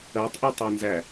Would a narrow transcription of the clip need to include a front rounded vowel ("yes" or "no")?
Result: no